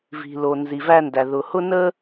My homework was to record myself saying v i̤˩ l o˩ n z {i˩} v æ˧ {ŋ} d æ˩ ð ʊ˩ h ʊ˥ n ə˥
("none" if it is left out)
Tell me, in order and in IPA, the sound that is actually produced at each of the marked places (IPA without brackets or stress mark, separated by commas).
i˩, n